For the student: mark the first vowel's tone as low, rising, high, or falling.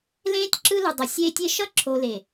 high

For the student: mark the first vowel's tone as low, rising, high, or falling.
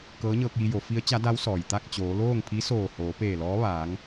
rising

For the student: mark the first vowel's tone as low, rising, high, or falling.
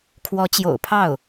rising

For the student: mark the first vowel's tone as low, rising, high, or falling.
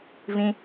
high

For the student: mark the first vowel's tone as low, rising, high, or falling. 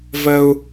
high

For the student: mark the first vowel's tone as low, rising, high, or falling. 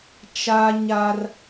high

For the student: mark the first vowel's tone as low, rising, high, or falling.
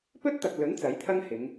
high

